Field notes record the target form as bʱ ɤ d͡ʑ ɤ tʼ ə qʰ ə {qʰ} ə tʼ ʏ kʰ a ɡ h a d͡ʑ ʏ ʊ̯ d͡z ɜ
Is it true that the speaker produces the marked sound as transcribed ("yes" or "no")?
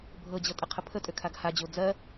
no